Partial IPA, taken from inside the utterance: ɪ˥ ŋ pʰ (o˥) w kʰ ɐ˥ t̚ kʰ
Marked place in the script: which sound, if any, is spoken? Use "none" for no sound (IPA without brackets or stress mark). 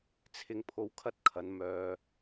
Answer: o˥